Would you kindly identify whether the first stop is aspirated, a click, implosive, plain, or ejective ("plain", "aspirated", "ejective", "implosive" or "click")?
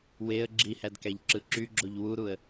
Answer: click